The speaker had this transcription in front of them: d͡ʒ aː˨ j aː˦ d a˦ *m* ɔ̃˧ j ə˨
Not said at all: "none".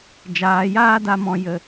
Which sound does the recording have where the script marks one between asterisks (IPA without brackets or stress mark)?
m